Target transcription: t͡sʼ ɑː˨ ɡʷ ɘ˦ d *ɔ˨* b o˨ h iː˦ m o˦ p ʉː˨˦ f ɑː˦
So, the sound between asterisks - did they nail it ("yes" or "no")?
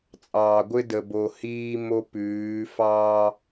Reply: no